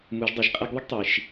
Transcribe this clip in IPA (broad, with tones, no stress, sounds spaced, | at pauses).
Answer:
m u˩˧ ʒ dˤ i˩ ʒ qʼ ɛ˧ ɡ ðˤ ə˥ ɡ tˤ i˩ ʃ